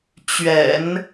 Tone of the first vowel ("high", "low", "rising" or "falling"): low